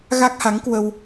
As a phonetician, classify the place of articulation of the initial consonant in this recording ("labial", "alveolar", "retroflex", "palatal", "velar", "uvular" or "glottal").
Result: velar